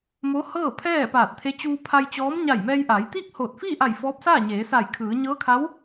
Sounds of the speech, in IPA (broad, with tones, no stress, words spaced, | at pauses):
mo˧˥hɤː˥˨pʰɛː˥˨ paː˧˩t̚t̪ʰe˧˥ t͡ɕuː˧pʰa˧j t͡ɕɔː˧˥m ɲa˧˩jmɛː˧jʔaː˩˧jt̪iː˥˨k̚ hoː˧˩t̚ fiː˥˨ʔa˧˩j fɔː˧˥p̚saː˥˨ɲeː˩˧ sa˧˩jkʰɯː˩˧ ɲɤː˧˥kʰa˧˥w